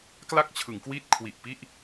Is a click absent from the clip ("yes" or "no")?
yes